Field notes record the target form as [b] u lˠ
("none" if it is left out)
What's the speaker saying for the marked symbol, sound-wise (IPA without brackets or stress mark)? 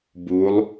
b